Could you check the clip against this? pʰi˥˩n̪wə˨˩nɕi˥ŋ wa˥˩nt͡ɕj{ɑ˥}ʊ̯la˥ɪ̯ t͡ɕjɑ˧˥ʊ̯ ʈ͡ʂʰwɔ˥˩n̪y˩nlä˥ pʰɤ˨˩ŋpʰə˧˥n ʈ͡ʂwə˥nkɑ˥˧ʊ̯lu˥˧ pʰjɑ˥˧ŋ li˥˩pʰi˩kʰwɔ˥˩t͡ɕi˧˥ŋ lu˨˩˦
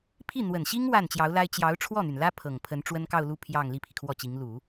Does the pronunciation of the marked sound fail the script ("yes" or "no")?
yes